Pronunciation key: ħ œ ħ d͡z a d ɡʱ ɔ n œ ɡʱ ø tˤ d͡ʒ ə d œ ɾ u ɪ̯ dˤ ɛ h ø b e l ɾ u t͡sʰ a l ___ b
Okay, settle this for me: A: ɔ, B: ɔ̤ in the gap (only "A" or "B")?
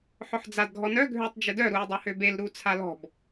B